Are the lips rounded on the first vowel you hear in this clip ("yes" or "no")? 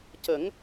no